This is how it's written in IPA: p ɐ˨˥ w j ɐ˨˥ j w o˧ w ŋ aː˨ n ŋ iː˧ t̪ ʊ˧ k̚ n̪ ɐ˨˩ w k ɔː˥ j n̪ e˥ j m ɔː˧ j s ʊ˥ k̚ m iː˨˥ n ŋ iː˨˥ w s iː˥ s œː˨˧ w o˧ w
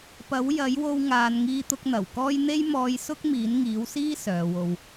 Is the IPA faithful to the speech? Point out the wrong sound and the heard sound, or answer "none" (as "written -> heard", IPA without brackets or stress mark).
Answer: none